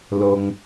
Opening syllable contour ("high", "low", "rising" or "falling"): low